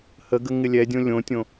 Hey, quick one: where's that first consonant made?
throat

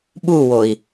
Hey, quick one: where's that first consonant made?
lips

